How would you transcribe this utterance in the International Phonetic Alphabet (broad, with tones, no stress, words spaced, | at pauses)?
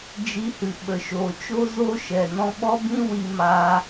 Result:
d͡ʒi˧hɨ˨ ɓə˨ʃoː˨t͡ʃo˦ zo˦ʃɛ˨ nɔ̃˧ɓɔ˦bĩ˦ wi˧maː˧